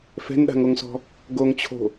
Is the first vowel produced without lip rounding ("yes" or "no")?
yes